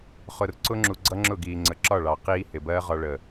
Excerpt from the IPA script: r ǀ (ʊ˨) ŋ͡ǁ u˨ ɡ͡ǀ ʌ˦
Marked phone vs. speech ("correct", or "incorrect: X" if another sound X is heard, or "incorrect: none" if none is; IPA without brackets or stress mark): incorrect: ʊ˧